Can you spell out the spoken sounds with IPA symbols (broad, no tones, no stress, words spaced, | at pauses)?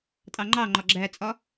tʼɑŋ͡ǃɑŋ͡ǃɒ ɡ͡ǁæt͡sʼɒ